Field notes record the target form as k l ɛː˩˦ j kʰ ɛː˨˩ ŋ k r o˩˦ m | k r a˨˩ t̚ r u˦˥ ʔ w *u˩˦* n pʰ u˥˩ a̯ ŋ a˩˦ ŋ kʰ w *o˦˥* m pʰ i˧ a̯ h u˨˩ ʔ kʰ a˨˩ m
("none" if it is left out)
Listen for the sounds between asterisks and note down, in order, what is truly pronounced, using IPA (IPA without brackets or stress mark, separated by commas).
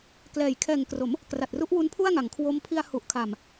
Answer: u˦˥, o˦˥